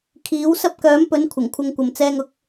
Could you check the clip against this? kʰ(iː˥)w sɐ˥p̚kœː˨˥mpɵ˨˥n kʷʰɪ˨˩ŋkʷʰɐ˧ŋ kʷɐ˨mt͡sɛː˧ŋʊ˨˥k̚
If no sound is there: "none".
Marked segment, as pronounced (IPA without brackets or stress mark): iː˨˥